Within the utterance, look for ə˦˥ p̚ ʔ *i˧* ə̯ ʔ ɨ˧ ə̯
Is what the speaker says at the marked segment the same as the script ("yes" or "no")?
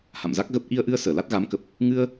yes